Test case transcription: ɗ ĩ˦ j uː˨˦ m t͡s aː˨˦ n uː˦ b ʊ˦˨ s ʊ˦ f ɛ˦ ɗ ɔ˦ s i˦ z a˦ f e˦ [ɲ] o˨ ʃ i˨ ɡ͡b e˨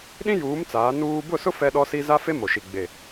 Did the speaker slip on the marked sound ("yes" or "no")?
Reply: yes